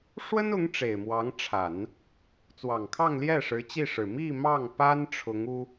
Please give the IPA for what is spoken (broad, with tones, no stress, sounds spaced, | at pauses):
ʂ w ə˥ n ʊ˧˥ ŋ ʈ͡ʂ e˨˩ ɪ̯ m w ɑ˧˥ ŋ ʈ͡ʂʰ a˨˩˦ n | t͡s w ɑ˨˩ ŋ kʰ ɑ˥˧ ŋ l j ɛ˥˩ ʂ ɻ̩˧˥ t͡ɕ i˥˩ ʂ ɻ̩˨˩ m i˥˧ m ɑ˥˩ ŋ p a˥ n ʈ͡ʂʰ ʊ˧˥ ŋ u˥